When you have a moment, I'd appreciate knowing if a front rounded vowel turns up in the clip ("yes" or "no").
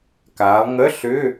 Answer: yes